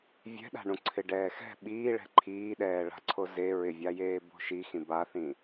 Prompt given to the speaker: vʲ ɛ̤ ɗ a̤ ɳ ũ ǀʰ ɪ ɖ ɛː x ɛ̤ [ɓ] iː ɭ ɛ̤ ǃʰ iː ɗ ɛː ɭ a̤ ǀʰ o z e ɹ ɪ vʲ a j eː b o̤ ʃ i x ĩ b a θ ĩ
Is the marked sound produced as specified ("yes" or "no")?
yes